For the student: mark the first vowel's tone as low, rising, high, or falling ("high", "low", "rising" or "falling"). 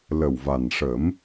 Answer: low